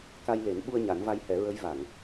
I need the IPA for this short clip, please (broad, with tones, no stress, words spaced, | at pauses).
ka˧jle˨˩˦n ɓu˧ə̯ ɲa˨˩˦nva˧jhɛ˨˩˦ɹə˧˥j va˨˩˨ŋ